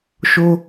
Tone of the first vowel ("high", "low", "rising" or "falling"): high